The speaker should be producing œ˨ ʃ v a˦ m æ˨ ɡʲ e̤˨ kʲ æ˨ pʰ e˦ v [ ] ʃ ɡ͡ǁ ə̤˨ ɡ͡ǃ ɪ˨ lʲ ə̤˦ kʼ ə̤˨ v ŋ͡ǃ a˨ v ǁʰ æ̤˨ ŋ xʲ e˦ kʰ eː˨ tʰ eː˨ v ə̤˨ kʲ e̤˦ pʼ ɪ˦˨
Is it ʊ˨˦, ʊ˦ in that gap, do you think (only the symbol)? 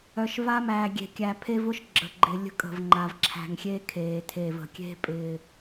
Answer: ʊ˦